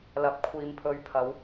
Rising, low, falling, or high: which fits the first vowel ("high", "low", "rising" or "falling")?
rising